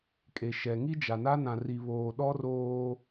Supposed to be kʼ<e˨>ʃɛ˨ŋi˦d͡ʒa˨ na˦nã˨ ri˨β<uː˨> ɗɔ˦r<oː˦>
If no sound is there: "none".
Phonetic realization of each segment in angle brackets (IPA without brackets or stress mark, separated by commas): e˨, oː˨, oː˦